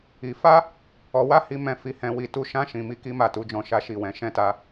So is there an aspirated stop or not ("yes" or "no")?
no